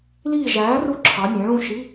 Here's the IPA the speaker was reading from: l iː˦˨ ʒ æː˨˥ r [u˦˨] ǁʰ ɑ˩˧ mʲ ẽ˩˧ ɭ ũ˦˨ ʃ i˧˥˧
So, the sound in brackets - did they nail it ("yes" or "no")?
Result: yes